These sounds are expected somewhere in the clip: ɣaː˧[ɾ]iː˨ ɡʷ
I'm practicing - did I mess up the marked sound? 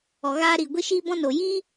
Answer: no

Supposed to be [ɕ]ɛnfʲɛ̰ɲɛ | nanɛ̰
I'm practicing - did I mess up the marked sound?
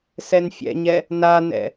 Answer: yes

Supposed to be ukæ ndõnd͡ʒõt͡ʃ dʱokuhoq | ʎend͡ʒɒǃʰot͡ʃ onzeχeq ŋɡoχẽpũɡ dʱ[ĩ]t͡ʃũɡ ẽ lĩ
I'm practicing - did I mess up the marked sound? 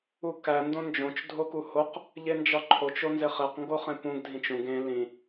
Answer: no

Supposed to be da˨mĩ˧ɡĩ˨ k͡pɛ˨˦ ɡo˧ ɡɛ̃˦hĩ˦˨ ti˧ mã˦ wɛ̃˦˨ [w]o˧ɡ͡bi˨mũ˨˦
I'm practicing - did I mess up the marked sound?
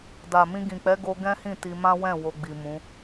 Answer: no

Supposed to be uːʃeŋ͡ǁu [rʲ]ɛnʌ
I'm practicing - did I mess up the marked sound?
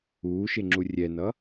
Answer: no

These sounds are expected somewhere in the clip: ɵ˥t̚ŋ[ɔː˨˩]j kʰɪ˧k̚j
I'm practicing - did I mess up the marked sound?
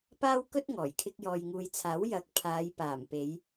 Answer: no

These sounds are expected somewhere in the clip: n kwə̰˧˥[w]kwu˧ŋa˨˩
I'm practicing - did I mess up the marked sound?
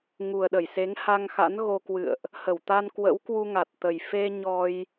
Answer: no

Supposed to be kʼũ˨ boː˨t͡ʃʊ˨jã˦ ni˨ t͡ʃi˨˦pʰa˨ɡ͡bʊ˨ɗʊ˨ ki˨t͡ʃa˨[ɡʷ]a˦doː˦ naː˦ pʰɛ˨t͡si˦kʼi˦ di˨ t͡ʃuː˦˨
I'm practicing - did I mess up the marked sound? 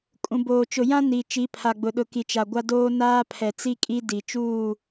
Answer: no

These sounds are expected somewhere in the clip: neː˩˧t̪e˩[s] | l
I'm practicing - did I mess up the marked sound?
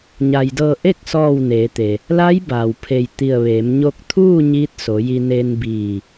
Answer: yes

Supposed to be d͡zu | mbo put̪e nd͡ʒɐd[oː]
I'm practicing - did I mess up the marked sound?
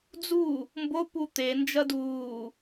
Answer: yes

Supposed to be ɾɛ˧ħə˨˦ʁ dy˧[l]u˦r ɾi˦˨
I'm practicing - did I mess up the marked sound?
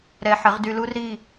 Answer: no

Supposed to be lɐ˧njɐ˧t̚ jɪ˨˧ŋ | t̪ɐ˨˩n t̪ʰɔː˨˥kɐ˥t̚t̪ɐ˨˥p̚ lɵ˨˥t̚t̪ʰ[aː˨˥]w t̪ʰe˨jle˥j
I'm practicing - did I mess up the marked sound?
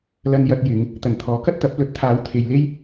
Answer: no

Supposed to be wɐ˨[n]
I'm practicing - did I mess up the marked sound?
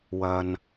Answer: no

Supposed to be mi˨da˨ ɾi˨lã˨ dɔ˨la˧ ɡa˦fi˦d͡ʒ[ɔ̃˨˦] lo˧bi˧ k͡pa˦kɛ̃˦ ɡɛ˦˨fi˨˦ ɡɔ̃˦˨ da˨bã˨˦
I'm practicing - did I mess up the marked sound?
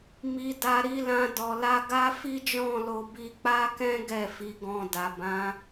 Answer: yes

